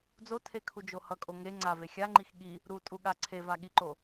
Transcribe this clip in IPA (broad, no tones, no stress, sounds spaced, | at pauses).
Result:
d͡z o tʰ e kʰ u d͡ʒ o h ʌ kʼ o ŋ e ŋ͡ǀ a v e xʲ a ŋ͡ǃ i x ɠ i | ɾ u tʼ u ɠ a ǀʰ e v a ɠ i ǃ o